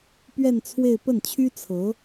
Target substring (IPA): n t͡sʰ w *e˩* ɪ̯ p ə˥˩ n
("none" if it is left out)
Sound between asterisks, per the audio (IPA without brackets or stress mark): e˥˧